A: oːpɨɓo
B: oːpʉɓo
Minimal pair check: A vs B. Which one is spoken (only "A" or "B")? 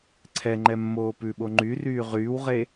B